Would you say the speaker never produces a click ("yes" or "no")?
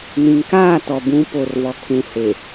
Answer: yes